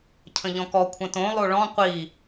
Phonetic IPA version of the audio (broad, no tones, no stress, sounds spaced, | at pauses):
cʰ ə̃ ʎ ɔ̃ k ɔ kʷʰ ə̃ t õ lˠ o ɭ ɔ̃ qʷ i